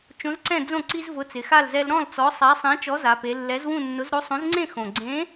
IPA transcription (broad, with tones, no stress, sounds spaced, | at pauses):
t͡ʃ õ˨˥ z ǀ ɛ̃˥˨ d͡z õ˥˨ ǀ i˦ z v ʊ˨˥ t͡s ɪ˩˧ x a˥˨ l z ɛ˦ l ɾ ɔ̃˥˨ l t͡s ɔ˨˥ sˤ a˨˥ sˤ ɛ̃˨˥ t͡ʃ ɔ˨˥ z a˩˧ p e˩˧ lː ɛ˨˥ z w ũ˥˨ nː ʊ˨˥ z ɾ o˨˥ sˤ õ˨˥ z ŋ͡ǀ ẽ˥˨ x õ˨˩ ɡ͡ǀ ẽ˨˥